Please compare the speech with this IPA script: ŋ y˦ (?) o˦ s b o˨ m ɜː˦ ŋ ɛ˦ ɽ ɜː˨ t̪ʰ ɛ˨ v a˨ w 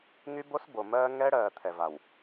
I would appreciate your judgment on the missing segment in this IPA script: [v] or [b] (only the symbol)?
b